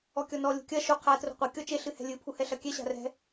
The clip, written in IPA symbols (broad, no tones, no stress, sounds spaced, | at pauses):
ɔ kʲ ɔ n ɔ lʲ o̤ kʲ ɐ ʃ o qʰ a t r o̤ qʷ ɛ kʲ ɔ t͡ʃ e ɬ ɨ h ɛ̤ lʲ ɨ pʰ u h ɛ ɬ ɐ kʲ ɛ ɕ a̤ r ɛ̤